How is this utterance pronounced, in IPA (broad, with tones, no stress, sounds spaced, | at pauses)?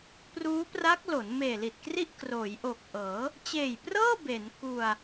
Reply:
p r uː˦˥ p r a˦˥ k̚ l o˩˦ n m eː˨˩ l i˨˩ t̚ k r i˥˩ ʔ k r oː˩˦ j ʔ o˨˩ k̚ ʔ ɤː˩˦ | t͡ɕ eː˨˩ j p r ɤː˥˩ b e˩˦ n k u˧ a̯